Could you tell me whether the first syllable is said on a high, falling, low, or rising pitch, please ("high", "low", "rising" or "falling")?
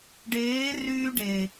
rising